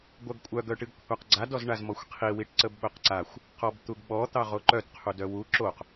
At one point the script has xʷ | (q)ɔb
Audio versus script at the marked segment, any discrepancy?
no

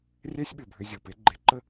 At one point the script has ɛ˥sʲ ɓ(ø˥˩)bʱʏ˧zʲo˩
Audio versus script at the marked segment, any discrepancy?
yes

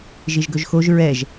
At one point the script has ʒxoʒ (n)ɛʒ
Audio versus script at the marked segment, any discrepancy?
yes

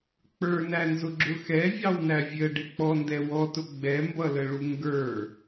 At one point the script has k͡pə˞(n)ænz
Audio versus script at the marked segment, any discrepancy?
no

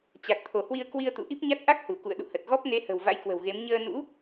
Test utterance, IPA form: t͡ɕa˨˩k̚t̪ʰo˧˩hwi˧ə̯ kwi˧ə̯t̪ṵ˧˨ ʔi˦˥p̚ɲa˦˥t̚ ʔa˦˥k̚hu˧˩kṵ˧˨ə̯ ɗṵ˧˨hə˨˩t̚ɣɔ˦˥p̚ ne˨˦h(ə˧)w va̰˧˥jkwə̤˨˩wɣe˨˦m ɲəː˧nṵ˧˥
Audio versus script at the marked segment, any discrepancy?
yes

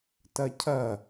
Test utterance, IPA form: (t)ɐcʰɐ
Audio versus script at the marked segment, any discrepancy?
no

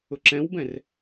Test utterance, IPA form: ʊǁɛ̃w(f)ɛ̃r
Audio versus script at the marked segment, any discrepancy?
yes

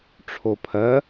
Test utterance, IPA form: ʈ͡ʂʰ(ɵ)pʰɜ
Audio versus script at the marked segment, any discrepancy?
yes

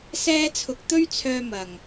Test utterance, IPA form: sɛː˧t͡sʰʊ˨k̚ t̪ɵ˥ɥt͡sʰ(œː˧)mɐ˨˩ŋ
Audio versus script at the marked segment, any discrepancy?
no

